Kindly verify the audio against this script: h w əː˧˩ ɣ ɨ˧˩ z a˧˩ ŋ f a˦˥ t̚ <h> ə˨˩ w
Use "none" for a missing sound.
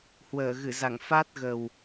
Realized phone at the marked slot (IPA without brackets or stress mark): ɣ